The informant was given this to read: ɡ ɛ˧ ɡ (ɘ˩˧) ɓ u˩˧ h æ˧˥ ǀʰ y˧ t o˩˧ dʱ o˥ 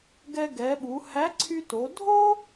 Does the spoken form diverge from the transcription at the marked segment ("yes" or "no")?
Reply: yes